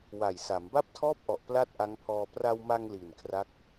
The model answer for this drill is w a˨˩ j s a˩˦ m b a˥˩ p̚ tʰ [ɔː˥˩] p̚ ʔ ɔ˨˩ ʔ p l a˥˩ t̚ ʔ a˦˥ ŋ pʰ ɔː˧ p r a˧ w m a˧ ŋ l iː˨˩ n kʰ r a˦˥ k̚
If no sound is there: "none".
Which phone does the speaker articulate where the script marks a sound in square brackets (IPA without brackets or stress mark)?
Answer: ɔː˥˩